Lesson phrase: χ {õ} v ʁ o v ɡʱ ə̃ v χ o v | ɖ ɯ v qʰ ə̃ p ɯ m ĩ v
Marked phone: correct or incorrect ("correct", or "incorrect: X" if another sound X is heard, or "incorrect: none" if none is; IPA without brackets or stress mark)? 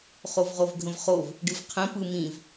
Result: incorrect: o